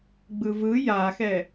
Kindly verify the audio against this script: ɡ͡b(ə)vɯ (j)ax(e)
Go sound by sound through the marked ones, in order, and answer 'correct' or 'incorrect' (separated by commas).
incorrect, correct, incorrect